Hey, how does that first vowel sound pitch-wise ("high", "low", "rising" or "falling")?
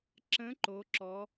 rising